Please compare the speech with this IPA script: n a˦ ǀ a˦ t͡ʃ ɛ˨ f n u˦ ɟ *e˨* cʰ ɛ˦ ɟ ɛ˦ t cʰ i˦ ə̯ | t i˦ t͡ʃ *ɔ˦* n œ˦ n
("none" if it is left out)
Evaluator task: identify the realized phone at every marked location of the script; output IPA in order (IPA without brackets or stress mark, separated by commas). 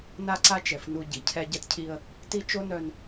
i˨, o˦